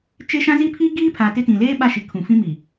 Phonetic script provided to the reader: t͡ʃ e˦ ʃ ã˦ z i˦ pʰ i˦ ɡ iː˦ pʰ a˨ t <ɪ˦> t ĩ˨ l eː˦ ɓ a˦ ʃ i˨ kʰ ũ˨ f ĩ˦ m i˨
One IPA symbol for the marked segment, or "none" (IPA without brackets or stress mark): ɪ˦